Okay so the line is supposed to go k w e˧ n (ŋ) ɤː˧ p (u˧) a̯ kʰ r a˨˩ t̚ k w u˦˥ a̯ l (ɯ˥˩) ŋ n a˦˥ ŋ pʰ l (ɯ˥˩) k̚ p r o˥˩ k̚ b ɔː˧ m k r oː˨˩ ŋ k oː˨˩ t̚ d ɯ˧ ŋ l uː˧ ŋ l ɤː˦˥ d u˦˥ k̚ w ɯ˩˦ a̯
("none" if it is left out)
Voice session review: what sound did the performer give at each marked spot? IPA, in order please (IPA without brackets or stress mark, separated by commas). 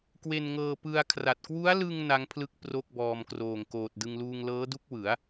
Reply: ŋ, ɯ˧, ɯ˧, ɯ˦˥